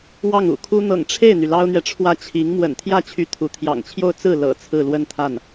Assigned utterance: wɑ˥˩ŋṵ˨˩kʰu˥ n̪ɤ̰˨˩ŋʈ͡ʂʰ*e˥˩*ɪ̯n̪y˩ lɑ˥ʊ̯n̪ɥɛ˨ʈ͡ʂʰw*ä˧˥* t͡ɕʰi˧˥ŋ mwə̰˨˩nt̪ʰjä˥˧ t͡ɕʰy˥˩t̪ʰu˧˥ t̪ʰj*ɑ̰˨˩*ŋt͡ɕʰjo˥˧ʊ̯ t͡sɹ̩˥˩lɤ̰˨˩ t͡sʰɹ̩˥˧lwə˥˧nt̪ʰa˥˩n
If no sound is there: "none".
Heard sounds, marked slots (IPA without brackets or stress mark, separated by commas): e˥˩, ä˥˩, ɑ̰˨˩